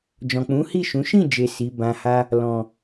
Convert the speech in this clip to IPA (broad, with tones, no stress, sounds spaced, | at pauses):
d͡ʒ ɔ̃˨ k͡p ũ˨˦ h i˦˨ ʃ ũ˨˦ ʃ ĩ˦˨ d͡ʒ e˨ s i˨˦ b ã˧ h a˦ | l ɔ̃˨